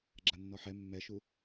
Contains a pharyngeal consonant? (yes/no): yes